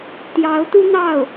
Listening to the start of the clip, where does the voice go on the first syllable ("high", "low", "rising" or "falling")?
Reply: rising